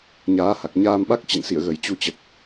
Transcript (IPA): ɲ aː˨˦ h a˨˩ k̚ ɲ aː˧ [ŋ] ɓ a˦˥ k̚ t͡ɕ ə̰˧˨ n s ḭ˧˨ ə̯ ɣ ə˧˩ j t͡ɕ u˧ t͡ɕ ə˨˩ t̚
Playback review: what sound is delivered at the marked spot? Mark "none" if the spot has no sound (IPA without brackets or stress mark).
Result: m